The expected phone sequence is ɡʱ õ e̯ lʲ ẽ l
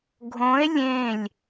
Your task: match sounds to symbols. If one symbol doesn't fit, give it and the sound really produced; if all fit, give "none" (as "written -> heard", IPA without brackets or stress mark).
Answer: l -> lʲ